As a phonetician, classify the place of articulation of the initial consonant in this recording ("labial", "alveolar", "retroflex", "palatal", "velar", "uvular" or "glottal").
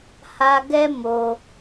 glottal